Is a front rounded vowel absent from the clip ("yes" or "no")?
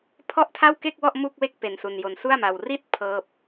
yes